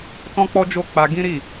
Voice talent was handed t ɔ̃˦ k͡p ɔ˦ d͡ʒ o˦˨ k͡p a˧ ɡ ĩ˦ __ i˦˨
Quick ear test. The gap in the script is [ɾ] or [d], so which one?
ɾ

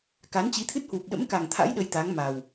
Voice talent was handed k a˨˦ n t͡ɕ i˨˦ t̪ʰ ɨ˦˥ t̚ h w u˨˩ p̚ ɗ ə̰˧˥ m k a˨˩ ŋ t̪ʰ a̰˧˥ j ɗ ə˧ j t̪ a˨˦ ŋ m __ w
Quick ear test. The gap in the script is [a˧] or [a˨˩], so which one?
a˨˩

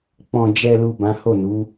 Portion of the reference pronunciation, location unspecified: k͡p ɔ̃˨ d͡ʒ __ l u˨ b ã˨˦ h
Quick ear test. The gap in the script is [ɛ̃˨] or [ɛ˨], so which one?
ɛ˨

